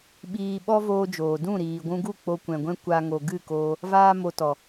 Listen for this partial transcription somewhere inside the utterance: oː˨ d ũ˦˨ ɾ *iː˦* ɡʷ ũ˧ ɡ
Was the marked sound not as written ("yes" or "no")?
yes